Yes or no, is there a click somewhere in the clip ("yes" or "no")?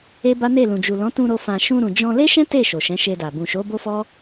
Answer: no